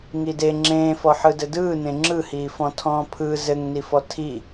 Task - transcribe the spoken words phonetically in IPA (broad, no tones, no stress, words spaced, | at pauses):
ŋide ŋ͡ǁẽːfɔ ħɯdɘdɯːnẽ ŋ͡ǁɯhiːfɔ̃ tʰɔ̃ːpʰɯ zɘŋnifɔ tʰi